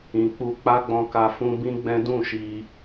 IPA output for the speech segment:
ĩ˨ k͡p u˧ k͡p a˦ ɡ͡b ɔ̃˧ k a˧ f ũ˧ b ĩ˦ ɡ͡b ɛ̃˦ d ũ˦˨ ʃ i˧

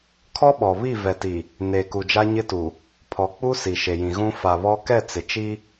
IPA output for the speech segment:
kʰ ɔ˦ ɓ ɔ˨ β i˦˨ v ɛ˨ t i˨ | n e˨ k u˨ d͡ʒ a˦ ɲ ɪ˦ t u˨ | pʰ ɔ˨ k͡p u˦ s i˨ ʃ e˨ j ĩ˨ ɣ ũ˦ f a˨ β ɔ˦ k ɛ˦˨ t͡s ɪ˨ t͡ʃ i˦

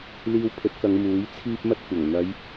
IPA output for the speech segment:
l iː˧ w pʰ ɵ˨˥ t̚ k ɐ˨˧ ŋ m uː˨˥ j t͡sʰ iː˥ p̚ m ɐ˥ t̚ kʷ ɐ˨˩ ŋ n̪ ɐ˨˧ j

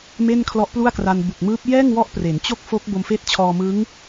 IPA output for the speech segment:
m e˥˩ n kʰ l ɔ˦˥ ʔ p l u˥˩ a̯ k r a˧ n b u˨˩ k̚ m ɯː˦˥ p̚ j ɛː˥˩ ŋ w ɔ˦˥ ʔ p r e˩˦ n t͡ɕ o˥˩ k̚ f o˦˥ k̚ b o˧ m f eː˦˥ t̚ t͡ɕʰ ɔː˧ m ɯ˦˥ ŋ

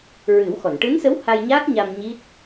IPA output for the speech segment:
ɹ ɨ˨˩˦ w x ɔ˨˩˨ n ʈ ɨ˧˥ n s ə˧˥ w h a˧ j ɲ aː˦˥ k̚ ɲ a˧ m ɲ i˦˥ t̚

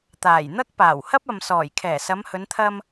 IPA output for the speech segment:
t̪ aː˨˩ j n̪ ɐ˥ k̚ p aː˨˩ w h ɐ˥ p̚ ɐ˨ m s ɔː˨˩ j kʰ ɛː˨˩ s ɐ˨˧ m h ɵ˨˧ n t̪ʰ ɐ˧ m

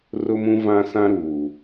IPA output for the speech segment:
r ʊ˦ m ũ˦ v ã˦ s ã˦ ɾ uː˨

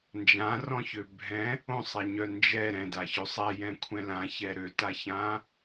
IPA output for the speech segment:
n d͡ʒ ã r ɔ̃ ç ø bʱ ɛ̃ | õ sˤ e ɲ œ n d͡ʒ ɛ ɾ ɛ̃ d a ç ø sˤ ɛ j ɛ̃ kʷʰ ɛ̃ l ã ç ɛ ɾ ø t a ç ã

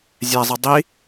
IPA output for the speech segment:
zʲ æ zˤ ɯ dˤ i

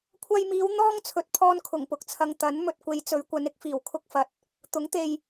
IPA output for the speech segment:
kʷʰ ɐ˧ j m iː˨˧ w n̪ ɔː˥ ŋ t͡sʰ ɵ˨˥ t̚ pʰ ɔː˧ n kʰ ʊ˨˩ ŋ p ʊ˨ k̚ t͡sʰ ɐ˨ ŋ t̪ ɐ˨˥ n m ɵ˨ t̚ kʷ e˨ j t͡s ɵ˨˧ ɥ kʷ ɐ˨˧ n ɪ˧ k̚ f iː˨˩ w kʰ ʊ˧ k̚ f ɐ˨˥ t̚ | t̪ ʊ˨˥ ŋ t̪ e˨ j

